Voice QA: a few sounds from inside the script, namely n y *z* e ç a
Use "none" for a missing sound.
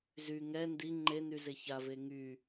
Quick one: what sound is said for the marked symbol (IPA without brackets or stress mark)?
z